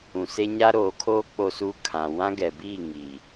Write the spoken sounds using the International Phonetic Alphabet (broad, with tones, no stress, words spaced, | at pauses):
ũ˨se˦ ɲa˦ɾoː˨˦kʰoː˦ k͡po˦suː˦ kʰã˨ wã˦ɡɛ˨biː˦˨ ŋiː˨